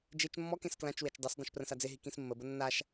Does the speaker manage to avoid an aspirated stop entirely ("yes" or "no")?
yes